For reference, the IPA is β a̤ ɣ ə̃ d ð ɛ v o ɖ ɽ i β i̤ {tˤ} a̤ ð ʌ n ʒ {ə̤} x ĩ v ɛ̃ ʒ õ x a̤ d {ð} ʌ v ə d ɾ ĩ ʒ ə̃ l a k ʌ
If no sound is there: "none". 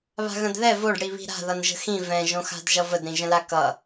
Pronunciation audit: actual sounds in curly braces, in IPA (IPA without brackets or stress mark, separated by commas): ɾ, ə̤, ʒ